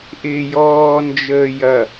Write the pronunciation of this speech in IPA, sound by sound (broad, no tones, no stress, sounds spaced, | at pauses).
ʔ ɪː j ɔː n d͡ʒ əː j ɐ